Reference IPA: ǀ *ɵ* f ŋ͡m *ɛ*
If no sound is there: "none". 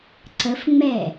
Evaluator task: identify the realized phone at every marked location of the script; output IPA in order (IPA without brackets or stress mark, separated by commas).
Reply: ə, ɛ